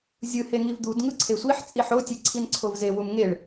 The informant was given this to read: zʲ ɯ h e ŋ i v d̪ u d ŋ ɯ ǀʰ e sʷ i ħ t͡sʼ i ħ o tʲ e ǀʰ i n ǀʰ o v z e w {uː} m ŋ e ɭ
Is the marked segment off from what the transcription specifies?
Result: yes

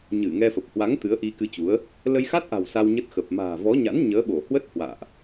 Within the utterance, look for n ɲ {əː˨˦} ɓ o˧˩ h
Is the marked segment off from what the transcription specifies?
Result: no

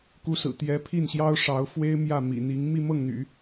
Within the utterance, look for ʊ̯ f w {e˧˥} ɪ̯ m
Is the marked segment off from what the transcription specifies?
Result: yes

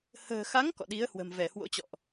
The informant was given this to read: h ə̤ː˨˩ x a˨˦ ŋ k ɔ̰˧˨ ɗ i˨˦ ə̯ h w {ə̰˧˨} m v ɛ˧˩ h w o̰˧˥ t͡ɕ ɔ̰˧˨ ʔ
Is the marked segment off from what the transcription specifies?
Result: yes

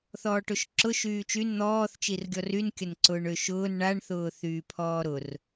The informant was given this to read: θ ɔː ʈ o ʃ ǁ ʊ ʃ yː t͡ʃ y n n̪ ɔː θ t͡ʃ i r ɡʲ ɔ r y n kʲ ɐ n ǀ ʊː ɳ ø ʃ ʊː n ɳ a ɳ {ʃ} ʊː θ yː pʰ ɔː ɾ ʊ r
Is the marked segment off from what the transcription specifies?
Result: yes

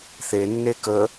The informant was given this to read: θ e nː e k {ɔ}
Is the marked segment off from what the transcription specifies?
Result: yes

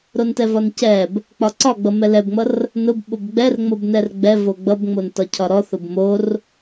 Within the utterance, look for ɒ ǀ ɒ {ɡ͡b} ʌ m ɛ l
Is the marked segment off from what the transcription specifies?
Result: no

